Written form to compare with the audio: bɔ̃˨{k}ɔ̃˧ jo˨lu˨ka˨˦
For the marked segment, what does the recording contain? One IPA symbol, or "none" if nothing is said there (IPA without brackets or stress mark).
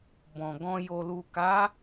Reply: ɡ